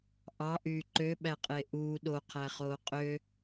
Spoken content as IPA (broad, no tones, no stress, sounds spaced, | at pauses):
ʔ ɑ ʔ yː ǃ ø ɓ æ qʼ e ʔ uː ɗ o qʰ æ χ oː qʼ ø